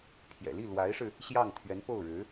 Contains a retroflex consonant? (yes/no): yes